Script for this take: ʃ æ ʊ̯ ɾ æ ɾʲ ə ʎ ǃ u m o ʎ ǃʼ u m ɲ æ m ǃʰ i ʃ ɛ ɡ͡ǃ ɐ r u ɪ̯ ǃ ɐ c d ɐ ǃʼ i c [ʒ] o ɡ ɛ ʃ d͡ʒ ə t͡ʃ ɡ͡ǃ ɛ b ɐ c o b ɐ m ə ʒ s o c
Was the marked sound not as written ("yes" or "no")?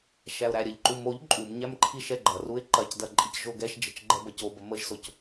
no